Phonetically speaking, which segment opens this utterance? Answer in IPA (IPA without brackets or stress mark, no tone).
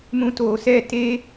m